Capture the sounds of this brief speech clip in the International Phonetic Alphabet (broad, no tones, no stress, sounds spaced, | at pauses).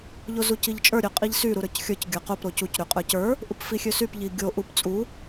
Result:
ʎ o z u c i ʎ t͡ʃʼ ə˞ ɾʲ ø qʼ i ʎ s y ɾ u ɾ ə˞ c xʲ ə˞ c ɡʲ ə˞ q o p ɾ o c u c ɾ y qʼ ə˞ c ə˞ | ʔ u p f i xʲ ø s y p ʎ i ɡʲ o ʔ u p t͡sʼ u